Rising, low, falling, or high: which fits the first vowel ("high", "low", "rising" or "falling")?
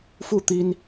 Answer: falling